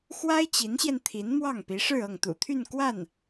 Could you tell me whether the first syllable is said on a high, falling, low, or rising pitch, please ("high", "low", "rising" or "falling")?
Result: high